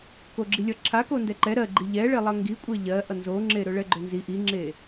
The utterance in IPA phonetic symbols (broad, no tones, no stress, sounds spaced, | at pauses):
k o ɡ͡ǁ i lʲ ʌ ǁʰ a k o n d ɛ ǃ ɛ ɾ ɜ ɡ͡ǃ i ʎ ɛ ɭ e lˠ ʌ ŋ ɡ i kʷʼ ɛ ʎ ɜ ʔ ʌ n z o ŋ͡ǁ e ɾ ɵ ɭ ɛ ɡ͡ǃ ɵ n z i ʔ i ŋ͡ǁ e